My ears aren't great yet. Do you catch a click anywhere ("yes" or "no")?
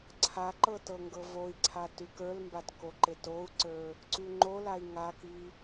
yes